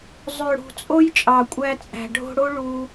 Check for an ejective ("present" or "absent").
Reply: present